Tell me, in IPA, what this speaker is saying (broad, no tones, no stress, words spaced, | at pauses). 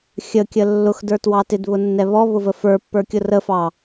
xʲəkʲə lːʊxdə˞twɑ tɪdβʊnːɛ βɔβʊvə fə˞pːə˞kʲʊ rəfɑ